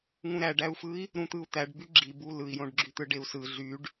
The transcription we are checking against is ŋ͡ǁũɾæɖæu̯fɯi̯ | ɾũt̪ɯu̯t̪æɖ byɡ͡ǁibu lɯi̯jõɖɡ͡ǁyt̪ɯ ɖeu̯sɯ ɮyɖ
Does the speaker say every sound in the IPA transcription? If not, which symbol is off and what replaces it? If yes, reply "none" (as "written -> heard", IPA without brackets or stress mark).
ŋ͡ǁ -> ŋ